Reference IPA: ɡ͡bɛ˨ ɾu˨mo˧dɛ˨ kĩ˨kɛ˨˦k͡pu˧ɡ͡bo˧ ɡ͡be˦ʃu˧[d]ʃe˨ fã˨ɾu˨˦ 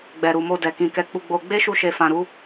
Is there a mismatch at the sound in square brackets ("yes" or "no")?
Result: yes